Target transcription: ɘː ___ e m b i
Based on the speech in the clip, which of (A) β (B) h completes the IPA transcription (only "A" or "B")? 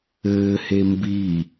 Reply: B